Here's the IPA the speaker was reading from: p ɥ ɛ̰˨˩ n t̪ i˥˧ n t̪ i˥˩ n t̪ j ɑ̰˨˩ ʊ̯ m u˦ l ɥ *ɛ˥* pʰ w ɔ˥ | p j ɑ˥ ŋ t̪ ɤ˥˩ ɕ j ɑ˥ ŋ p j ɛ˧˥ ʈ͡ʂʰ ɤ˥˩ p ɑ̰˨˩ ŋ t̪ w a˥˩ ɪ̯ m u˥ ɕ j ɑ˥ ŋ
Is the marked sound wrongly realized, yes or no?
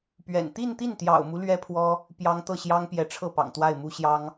no